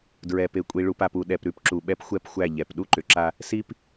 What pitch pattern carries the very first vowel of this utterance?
low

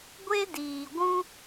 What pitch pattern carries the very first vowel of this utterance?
high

